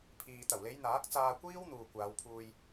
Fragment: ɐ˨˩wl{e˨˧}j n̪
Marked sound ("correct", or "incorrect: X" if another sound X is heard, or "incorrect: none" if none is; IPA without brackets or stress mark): correct